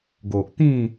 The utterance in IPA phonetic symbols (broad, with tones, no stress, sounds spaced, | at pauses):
ɡ o˨ ʔ t̪ ĩ˥˧